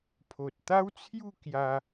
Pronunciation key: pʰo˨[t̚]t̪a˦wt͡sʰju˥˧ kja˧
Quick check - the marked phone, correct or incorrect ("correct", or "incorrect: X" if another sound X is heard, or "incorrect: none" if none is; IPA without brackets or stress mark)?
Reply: correct